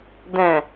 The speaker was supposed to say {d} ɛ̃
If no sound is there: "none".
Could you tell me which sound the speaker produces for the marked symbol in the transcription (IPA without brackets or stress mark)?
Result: d